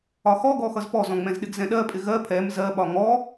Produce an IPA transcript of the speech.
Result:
ɒxɔɡɔ xʌzpɔzɔ̃ ŋ͡mɛ̃zɗɪɡzɛ̃ɗɜ pʼɪɣɜ pʰɛm zɜɓɒ ŋɔ

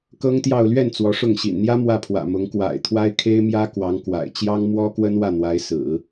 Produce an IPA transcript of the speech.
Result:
kɤ˥ŋt̪jɑ˥˧ʊ̯ lɥɛ˥˩n t͡swɔ˧˥ʂʊ˥˩ŋ ɕḭ˨˩nn̪jä˥ mwä˥˩pʰwä̰˨˩mʊ˧˥ŋ kwa̰˨˩ɪ̯t̪ʰwa˥ɪ̯ kʰe˥ɪ̯mjä˥ kwɑ˧˥ŋkwa̰˨˩ɪ̯ t͡ɕjɑ˥ŋmwɔ˥kwə˥n wä˥˩n̪wa˧˥ɪ̯sɹ̩˨˩˦

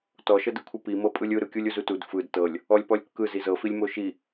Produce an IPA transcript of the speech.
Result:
tɔʃɤdɯkʷʰɯ pimɤpʼɯlʲ ɯɾɯkʲulʲ uzutud fɯd tɤlʲ | ɔlʲpɔlʲkːɯ zizɤfilʲ moʃi

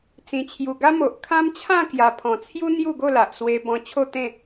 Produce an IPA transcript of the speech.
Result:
t͡sĩ˨˩t͡ɕʰju˨˩ɡa˦ mo˨ʔkʰã˦m t͡ɕʰã˥˧kja˨˩pʰɔ̃˨˩t͡sʰju˦ n̪ju˥˧ɡo˥˧la˨ʔswe˧ bɔ̃˧t͡ɕʰo˥˧t̪ẽ˥˧

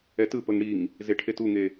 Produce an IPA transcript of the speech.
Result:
ɛtɯpɤŋ ɽiŋ | zeʈʰetuŋe

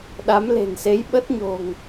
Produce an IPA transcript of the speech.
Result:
ɗa˨˦mle̤˨˩nse˨˦j ɓə˦˥t̚ɲo̤˨˩ŋ

